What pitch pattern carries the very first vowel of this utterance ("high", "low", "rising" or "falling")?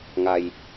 low